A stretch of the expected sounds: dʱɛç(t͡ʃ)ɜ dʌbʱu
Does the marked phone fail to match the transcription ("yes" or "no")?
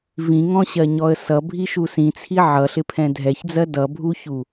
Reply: yes